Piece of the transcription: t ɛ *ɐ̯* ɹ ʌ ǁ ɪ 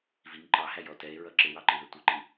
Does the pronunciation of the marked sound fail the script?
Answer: yes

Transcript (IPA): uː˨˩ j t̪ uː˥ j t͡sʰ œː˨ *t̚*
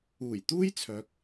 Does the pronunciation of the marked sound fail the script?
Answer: yes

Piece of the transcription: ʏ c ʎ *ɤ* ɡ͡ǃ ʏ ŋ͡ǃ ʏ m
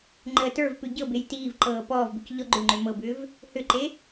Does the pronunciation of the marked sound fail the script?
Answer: yes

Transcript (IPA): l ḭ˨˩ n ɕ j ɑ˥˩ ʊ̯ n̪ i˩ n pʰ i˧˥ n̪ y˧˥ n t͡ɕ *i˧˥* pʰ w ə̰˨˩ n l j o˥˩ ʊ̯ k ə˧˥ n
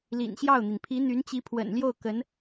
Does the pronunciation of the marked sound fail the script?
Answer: no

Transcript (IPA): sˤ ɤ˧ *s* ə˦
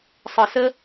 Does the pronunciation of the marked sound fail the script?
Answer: no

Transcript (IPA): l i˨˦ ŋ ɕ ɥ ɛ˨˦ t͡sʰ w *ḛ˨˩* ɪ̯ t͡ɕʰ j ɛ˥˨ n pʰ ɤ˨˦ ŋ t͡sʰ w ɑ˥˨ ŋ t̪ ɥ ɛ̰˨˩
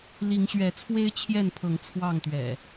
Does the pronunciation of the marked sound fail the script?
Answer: yes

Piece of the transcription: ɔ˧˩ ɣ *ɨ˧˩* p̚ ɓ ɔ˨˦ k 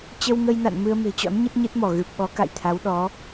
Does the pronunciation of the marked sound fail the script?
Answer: yes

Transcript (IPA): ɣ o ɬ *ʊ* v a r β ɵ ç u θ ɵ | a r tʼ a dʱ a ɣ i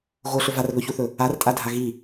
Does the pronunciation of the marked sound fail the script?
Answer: yes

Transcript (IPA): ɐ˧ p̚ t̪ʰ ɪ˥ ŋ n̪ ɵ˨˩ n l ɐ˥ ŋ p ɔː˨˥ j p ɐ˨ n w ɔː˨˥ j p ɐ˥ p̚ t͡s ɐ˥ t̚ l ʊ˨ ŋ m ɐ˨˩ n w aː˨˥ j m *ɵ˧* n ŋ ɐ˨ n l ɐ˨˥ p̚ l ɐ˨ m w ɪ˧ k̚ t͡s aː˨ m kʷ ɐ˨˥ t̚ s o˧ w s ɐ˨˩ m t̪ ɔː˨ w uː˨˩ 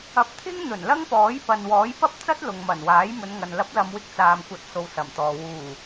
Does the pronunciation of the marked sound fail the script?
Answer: yes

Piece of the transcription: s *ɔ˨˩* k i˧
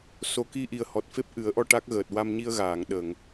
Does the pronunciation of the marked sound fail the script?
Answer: yes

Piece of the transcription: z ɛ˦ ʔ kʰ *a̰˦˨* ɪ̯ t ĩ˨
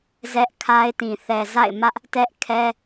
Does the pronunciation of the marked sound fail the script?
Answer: yes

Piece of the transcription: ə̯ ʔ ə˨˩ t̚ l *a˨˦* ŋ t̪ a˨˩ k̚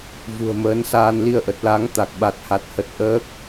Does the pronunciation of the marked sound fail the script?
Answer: no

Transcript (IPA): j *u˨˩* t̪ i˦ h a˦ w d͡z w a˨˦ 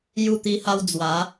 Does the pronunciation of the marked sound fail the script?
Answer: yes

